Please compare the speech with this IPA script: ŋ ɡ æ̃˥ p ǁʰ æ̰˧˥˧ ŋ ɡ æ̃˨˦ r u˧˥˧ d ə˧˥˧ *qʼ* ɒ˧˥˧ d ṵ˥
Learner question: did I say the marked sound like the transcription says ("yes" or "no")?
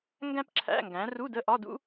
no